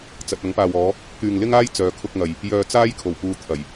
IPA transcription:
t͡s ɐ˨ t̚ ɐ˨˥ ŋ p aː˨ w ɔː˨˧ | k yː˨ ŋ l ɪ˥ ŋ aː˥ j t͡s œː˨˧ kʰ ʊ˧ k̚ ŋ ɐ˨ j | j œː˧ t͡s aː˥ j kʰ o˨˩ w p uː˧ t̪ʰ ɐ˨˩ j

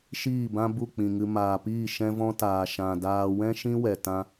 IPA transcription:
ʃ iː˦˨ b ã˦ b u˦˨ k͡p ĩ˨ ŋ ɨ˧ m aː˨ p iː˦˨ ʃ ɛ̃˦ v ɔ̃˦ t aː˨ ʃ ã˨ d aː˧ w ɛ̃˦ ʃ ĩ˦ w ɛ˨ t ã˦

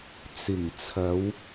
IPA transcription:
t͡s ɪ˨˩ ŋ t͡sʰ ɐ˨˧ w

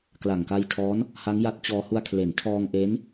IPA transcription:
k l a˨˩ ŋ k a˧ j tʰ ɔː˦˥ n | h a˦˥ ŋ j a˦˥ t̚ t͡ɕ ɔː˧ h u˧ a̯ kʰ l e˩˦ n tʰ ɔː˧ ŋ ʔ e˦˥ n

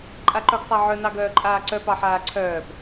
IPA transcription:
ǃʼ a ǃ œ ɡ sˤ a ʕ œ n ɑ ɡ œː ǃʼ aː ǀ œ p ɑ ħ aː ǀʰ œː p

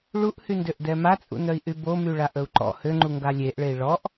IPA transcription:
ɭ u ʔ h y n d ø ʔ d ɛ m a t͡sʼ ṵ n œ i̯ ʔ y b o m y ɭ a ʔ ə u̯ ǃ ɔ̰ h ø ŋ͡ǃ u ŋ ɡ a lʲ e ʔ ɭ e i̯ ɭ ɔ ʔ

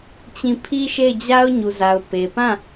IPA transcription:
t͡ɕ ĩ˦˨ pʰ i˦ ʃ e˦˨ ɪ̯ d͡ʑ a˦ ʊ̯ ɲ u˨ z a˨ ʊ̯ p e˨ p ã˦˨

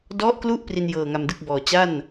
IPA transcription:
d ɔ˦˥ ʔ k l u˦˥ ʔ p r i˧ n j ɤː˨˩ ŋ a˧ m d ɯ˥˩ k̚ b ɔː˨˩ t͡ɕ a˥˩ n

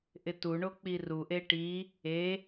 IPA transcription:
ʔ ɪ t u ɳ o k͡p i r u ʔ e ʈ i | e

